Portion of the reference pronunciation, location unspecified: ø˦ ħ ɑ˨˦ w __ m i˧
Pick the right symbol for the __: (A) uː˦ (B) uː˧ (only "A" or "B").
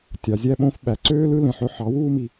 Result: A